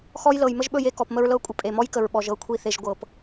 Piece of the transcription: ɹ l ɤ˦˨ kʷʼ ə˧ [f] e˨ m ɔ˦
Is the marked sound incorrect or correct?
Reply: incorrect